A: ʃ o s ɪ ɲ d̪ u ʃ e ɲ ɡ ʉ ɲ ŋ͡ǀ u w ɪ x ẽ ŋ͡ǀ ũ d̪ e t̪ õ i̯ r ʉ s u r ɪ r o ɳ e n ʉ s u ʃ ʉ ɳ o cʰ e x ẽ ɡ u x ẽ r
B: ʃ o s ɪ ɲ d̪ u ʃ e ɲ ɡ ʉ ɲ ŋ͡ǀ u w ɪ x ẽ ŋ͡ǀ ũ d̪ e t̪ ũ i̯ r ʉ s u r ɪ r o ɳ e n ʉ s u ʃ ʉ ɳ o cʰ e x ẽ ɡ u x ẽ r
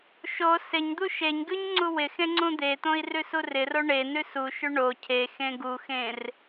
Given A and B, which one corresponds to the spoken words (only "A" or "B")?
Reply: A